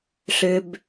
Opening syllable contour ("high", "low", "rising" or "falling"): high